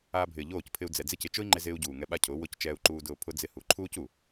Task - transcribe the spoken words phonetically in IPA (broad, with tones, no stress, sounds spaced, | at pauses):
aː˧ bʱ ɪː˨ ʎ oː˦˨ c pʰ ɪ˧ u̯ d͡z ɛ˨ d͡z ɪ˦˨ c ɪ˧ t͡ʃ ʊ˦ i̯ ŋ͡ǃ ɪ˧ z ɪː˧ u̯ ɟ uː˨ ŋ ɛ˧ ɓ a˦˨ cʰ ʊː˨˦ w ʊ˦˨ c t͡ʃ ɛː˧ u̯ ǃ uː˧ d ʊː˧ pʰ ʊ˦ d͡z ɪ˧ h u˨ ǃʰ uː˦ c u˨